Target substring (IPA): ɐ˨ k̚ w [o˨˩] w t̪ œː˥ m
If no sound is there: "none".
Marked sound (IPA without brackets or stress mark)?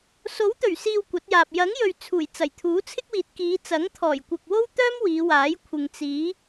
o˥